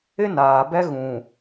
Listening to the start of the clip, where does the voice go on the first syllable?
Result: high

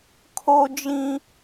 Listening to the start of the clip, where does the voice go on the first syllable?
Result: high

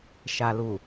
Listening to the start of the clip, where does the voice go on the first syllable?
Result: low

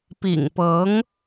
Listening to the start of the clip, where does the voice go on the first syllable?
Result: low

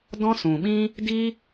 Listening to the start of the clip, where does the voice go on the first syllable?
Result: high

